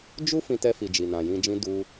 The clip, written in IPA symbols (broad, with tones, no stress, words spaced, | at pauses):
d͡ʒu˦ fĩ˧tɛ˧fi˨ d͡ʒi˨nã˨jĩ˧d͡ʒĩ˦ du˧